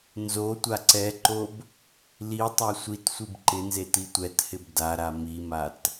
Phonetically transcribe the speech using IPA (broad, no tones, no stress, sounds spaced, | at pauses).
n z o tʷ a ǀ ɛ ǃ o b | l i tˤ a sʷ i t sʷ i b ǃ ɪ n z e t i tʷ ɛ t h ɪ b d a ɾ a m i m a t